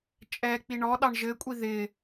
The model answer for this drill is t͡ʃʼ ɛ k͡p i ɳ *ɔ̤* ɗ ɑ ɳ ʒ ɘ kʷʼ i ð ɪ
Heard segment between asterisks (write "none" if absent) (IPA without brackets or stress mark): ɔ